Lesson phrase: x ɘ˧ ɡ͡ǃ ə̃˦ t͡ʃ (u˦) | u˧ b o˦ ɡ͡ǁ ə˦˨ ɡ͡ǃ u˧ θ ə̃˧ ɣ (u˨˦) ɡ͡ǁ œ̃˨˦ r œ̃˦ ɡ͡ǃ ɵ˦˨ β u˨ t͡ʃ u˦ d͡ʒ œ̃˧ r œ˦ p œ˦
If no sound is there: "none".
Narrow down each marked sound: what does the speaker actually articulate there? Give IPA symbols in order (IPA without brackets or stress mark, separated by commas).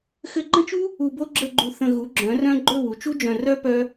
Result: u˦, u˨˦